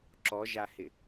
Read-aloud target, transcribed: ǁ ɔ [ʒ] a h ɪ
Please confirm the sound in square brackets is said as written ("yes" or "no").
yes